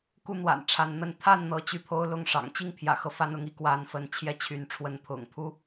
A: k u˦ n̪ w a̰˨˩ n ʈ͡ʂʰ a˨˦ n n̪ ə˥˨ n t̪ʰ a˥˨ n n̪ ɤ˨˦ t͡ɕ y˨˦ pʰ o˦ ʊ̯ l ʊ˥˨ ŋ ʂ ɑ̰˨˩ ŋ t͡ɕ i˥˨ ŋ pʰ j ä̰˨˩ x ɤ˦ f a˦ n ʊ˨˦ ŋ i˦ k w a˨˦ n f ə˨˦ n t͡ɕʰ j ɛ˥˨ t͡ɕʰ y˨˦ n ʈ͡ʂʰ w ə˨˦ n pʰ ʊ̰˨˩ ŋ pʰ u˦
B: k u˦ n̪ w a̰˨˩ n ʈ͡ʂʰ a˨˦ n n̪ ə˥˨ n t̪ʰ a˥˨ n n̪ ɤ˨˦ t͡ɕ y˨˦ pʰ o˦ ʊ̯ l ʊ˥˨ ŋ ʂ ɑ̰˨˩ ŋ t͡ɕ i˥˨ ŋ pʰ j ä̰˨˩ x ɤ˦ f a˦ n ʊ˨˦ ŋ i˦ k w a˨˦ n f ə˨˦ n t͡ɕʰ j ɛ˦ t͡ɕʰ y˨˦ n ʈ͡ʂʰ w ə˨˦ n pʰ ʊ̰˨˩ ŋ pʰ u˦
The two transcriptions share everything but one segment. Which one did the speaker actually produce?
A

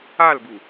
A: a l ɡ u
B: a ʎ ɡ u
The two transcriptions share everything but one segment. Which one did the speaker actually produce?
A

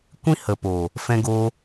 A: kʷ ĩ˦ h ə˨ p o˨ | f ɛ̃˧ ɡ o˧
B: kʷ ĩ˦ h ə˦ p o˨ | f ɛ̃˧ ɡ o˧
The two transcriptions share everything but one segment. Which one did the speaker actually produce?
A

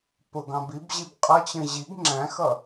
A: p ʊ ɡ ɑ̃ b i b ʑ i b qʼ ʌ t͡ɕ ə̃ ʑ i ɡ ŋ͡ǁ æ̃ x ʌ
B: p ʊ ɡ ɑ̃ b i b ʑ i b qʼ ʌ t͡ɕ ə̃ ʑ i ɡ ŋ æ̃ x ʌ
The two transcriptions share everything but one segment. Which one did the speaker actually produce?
A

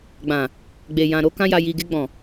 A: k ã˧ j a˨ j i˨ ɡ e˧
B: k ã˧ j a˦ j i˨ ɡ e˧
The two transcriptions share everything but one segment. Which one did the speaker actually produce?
A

